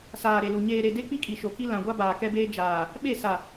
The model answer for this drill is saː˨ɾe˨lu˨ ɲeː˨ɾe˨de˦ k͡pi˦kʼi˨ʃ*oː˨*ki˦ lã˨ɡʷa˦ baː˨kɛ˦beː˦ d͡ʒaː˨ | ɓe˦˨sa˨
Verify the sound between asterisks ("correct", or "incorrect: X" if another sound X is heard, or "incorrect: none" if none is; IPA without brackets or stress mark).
incorrect: o˨